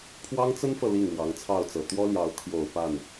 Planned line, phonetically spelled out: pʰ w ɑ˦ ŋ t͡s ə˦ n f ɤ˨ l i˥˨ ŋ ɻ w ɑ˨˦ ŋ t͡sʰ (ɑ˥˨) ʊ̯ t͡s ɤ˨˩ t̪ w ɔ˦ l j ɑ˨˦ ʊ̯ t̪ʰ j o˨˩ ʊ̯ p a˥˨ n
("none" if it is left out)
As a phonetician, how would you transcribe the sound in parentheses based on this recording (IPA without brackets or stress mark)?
ɑ˥˨